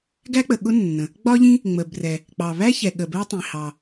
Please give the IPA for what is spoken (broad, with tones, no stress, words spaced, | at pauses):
ɡæ˥k͡pə˩ɠʊ˥ nːə̃˩ | ɡ͡bɒ˥ʎĩ˥ | ŋ͡mə˩brɛ˩ | k͡pɑ˩βæ˥ çɛ˩ɠə˩bɜ˥tˤĩ˩ hɑ˩